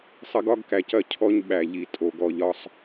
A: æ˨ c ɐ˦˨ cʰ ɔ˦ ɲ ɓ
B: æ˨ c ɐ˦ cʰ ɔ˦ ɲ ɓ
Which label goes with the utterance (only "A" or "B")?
A